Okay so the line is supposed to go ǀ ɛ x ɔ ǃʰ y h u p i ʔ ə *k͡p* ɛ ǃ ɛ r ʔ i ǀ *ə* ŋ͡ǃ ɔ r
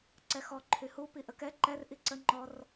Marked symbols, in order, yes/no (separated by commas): no, yes